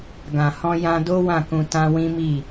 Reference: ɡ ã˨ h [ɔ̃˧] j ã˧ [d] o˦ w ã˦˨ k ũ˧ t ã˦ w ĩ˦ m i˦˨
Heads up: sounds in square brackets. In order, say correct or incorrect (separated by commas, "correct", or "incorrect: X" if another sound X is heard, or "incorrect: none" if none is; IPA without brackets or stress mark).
correct, correct